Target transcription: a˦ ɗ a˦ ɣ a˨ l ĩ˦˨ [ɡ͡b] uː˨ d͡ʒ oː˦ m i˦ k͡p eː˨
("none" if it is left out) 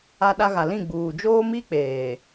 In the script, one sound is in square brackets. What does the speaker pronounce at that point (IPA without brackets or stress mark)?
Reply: ɡ͡b